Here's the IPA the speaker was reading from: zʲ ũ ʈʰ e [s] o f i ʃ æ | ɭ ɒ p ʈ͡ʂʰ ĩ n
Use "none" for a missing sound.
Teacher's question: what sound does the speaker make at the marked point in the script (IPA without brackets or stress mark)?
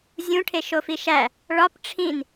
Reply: ʃ